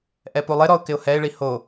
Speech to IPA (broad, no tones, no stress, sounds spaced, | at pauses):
ʔ ɛ p u lˠ ɪ ɾ ɔ ʊ̯ k ɪ ʊ̯ h ɛ ɪ̯ ɭ i h o